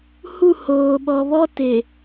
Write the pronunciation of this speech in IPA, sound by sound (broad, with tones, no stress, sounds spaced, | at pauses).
h u˦˨ h oː˨ ɓ ɔ˨ β ɔ˦ t e˨